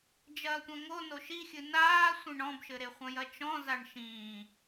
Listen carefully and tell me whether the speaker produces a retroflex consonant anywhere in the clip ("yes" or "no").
yes